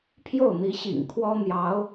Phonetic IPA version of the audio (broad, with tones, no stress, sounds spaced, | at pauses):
pʰ j o˥˩ ʊ̯ n̪ i˧˥ ɕ ḭ˨˩ ŋ kʰ w ɔ˥ n̪ j ɑ˧˥ ʊ̯